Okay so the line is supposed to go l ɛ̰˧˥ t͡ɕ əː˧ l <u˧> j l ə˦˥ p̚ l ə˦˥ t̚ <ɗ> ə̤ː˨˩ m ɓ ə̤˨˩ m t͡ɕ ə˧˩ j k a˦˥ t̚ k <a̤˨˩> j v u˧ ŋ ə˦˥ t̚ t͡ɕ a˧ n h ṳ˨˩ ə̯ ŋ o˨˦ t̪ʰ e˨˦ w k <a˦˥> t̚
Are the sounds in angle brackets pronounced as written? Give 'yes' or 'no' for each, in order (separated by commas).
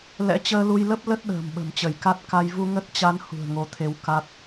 yes, yes, no, yes